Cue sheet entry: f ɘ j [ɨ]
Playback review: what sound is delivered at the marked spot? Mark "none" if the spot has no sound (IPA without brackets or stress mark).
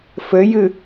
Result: ɨ